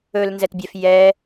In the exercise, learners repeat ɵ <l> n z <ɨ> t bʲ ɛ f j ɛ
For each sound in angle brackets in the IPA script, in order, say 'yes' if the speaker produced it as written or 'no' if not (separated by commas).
yes, no